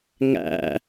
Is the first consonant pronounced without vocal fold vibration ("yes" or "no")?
no